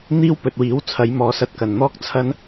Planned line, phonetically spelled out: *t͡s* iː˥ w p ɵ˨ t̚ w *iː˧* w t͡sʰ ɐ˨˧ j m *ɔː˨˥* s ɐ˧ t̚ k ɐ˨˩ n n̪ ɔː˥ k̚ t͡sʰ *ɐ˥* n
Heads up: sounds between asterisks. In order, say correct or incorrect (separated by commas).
incorrect, incorrect, incorrect, correct